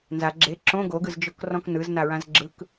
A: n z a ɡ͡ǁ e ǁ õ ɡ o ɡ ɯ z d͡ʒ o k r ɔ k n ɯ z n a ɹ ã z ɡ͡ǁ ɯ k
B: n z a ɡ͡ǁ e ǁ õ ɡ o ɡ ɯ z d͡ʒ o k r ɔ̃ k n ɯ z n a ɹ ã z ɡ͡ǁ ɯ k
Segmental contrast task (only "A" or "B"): B